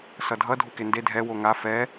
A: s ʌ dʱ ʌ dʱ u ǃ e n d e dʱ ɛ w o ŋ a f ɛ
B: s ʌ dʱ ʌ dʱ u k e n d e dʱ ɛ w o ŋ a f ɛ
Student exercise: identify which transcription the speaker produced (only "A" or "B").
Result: B